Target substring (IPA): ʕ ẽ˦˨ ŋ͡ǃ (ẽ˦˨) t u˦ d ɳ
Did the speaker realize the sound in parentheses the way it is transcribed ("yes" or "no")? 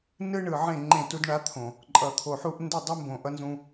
yes